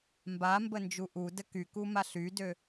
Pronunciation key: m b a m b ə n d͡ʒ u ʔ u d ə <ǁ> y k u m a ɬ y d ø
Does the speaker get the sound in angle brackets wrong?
yes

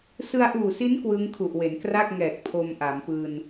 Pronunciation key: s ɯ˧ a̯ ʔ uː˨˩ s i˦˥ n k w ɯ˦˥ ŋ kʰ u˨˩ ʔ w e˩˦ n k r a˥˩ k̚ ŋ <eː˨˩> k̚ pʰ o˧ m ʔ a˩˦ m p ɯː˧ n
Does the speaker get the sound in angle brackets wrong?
yes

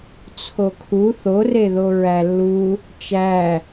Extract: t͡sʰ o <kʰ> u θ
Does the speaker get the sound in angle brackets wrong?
no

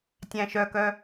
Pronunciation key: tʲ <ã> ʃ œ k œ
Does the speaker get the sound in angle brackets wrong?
yes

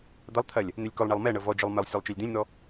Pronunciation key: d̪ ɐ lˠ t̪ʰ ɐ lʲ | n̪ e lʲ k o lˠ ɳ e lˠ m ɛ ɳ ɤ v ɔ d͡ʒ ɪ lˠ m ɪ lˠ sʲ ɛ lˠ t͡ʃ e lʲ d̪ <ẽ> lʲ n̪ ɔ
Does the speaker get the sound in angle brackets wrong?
no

